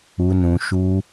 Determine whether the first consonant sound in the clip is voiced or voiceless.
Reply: voiced